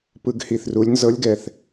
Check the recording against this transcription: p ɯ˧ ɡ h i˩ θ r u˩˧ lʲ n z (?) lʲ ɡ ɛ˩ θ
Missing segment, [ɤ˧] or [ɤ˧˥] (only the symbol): ɤ˧˥